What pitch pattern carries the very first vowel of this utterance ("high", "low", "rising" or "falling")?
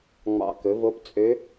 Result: low